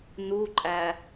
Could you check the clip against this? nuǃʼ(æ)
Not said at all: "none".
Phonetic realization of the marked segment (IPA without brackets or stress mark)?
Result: æ